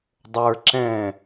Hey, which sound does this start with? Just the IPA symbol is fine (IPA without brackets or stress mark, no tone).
dˤ